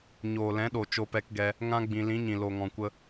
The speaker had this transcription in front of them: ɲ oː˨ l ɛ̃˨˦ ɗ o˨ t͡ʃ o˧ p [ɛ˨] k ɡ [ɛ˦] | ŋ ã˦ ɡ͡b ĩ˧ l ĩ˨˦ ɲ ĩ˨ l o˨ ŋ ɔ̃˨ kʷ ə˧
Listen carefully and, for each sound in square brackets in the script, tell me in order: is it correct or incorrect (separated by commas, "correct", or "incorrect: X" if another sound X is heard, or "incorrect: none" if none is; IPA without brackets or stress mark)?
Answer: incorrect: ɛ˧, incorrect: ɛ˧